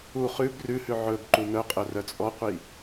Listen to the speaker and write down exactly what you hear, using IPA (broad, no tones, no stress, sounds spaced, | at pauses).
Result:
u χ ʉ b r ʉ h ʉ ʕ ɵ b ǃ u n̪ œ qʼ œ r œ t͡sʼ ɔ qʷ i